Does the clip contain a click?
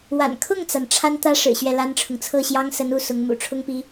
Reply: no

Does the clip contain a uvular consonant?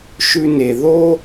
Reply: no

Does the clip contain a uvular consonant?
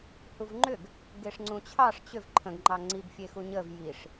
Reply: no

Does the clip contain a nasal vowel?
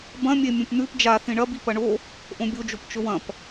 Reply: yes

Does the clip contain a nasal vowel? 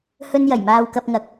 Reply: no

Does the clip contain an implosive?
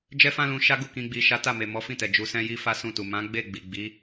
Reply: no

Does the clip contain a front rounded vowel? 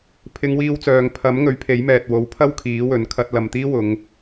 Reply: yes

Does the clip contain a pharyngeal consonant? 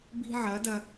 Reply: yes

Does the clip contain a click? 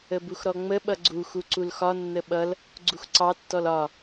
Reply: yes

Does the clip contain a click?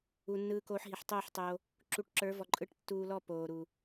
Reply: yes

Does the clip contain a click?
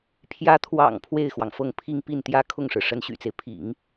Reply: no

